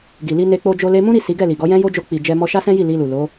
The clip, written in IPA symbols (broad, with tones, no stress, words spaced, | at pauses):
ɡi˨li˧ ne˧k͡po˧d͡ʒo˧ le˧mũ˦ɾi˦˨ si˨˦ɡɛ˦˨li˨ɡɔ˨˦ jɛ̃˦jo˦d͡ʒo˧ k͡pi˨d͡ʒɛ˧ mɔ˧ʃa˦sɛ̃˦ji˦˨ li˧lu˨ lo˨˦